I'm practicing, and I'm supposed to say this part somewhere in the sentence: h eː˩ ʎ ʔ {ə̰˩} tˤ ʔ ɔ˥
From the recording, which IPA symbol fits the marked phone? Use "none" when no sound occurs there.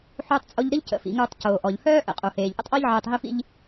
ə̰˥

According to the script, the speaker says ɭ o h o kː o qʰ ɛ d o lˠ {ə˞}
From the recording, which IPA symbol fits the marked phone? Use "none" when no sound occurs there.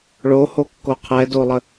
ə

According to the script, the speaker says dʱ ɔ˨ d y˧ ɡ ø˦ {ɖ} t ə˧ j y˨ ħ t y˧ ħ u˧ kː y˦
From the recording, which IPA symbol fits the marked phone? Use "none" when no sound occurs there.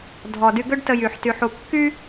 ɖ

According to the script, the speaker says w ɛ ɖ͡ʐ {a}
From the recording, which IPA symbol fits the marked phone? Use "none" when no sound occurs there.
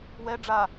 a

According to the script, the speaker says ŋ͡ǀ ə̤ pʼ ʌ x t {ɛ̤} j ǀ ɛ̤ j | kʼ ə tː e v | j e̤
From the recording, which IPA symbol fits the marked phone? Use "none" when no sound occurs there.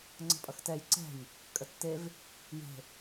ɛ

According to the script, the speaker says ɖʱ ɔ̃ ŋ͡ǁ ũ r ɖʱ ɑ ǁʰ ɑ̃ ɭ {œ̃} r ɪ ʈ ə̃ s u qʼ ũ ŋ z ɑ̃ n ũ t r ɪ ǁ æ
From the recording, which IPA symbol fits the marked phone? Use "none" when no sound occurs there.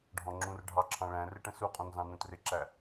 æ̃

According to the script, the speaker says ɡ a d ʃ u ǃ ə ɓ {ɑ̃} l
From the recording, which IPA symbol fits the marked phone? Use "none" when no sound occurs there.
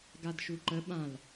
ã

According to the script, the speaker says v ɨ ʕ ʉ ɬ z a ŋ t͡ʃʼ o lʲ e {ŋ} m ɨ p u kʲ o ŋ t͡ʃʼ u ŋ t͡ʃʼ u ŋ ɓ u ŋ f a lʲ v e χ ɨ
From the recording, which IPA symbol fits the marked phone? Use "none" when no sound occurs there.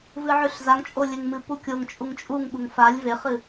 ŋ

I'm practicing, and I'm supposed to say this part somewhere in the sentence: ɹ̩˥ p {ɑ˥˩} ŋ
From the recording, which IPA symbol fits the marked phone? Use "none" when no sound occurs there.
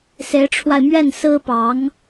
ɑ˧˥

